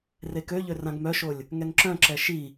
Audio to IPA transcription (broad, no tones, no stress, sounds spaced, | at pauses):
r e k ø ʎ ø r ã ɡ m œ ʃ o lʲ | ŋ ɛ ŋ ǁ œ̃ ǁ ɛ ʃ i